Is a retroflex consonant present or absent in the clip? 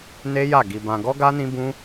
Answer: absent